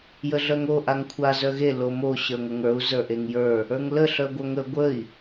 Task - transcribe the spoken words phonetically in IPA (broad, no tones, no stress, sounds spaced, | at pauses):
j ə ɮ œ ŋ o ʔ a ŋ kʷʰ a z œ ɣ e l o m o ɕ ə˞ ŋʷ ə ŋ ə˞ u̯ z ə˞ ʔ e ŋ j ə˞ | ə˞ ŋ l ə ɬ œ ɡʷ œ ŋ ə ɡʷ ə i̯